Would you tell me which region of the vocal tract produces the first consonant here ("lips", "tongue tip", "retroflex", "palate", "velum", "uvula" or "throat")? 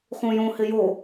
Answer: uvula